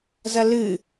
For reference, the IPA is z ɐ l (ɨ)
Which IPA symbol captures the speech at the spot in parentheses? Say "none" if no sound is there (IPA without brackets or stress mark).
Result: ɨ